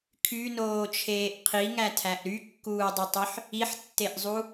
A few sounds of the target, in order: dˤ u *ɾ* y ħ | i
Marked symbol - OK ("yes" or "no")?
no